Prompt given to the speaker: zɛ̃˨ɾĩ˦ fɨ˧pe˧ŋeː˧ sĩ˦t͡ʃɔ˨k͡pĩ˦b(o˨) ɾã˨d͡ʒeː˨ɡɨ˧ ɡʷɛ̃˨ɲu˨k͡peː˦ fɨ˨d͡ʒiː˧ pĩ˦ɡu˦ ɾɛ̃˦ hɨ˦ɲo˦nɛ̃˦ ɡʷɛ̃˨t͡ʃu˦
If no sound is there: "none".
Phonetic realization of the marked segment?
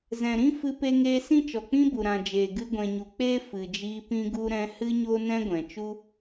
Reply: u˨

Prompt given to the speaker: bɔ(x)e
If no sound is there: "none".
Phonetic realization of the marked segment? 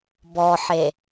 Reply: ħ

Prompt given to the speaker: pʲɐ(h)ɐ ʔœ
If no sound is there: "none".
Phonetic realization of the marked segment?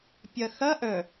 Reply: x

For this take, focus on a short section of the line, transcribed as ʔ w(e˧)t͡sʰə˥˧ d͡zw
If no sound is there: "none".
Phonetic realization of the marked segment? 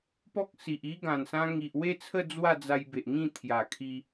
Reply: e˥˧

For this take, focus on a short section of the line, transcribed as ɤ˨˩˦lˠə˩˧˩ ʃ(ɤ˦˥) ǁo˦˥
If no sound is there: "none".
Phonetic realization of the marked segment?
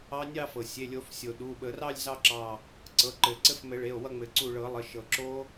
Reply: ɤ˩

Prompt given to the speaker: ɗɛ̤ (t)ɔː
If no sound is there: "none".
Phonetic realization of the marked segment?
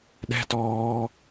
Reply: t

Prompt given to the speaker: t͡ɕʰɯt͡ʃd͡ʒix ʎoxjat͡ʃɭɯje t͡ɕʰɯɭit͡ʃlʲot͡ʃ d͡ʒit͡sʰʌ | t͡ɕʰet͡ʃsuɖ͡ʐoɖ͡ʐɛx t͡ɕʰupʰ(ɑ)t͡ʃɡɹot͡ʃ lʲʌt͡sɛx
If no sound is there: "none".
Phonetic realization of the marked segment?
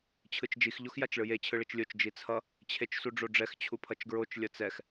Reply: ʌ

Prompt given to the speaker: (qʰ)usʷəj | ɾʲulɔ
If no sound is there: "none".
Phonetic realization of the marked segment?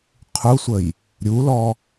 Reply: qʰ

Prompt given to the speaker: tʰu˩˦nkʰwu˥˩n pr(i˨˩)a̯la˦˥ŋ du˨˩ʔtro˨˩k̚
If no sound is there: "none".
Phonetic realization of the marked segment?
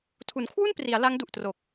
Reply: i˩˦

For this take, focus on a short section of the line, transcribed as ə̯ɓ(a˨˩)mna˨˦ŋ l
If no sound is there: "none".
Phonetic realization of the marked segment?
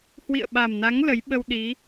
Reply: a˨˩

